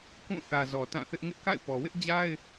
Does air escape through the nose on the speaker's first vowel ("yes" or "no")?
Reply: yes